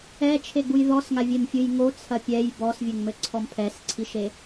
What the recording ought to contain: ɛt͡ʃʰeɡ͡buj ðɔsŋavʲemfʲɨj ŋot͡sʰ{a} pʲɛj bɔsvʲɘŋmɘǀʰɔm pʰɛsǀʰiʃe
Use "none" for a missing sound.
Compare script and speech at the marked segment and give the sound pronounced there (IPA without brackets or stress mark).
ɐ